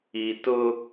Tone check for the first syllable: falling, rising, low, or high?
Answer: low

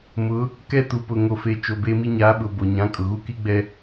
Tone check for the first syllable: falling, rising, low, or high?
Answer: rising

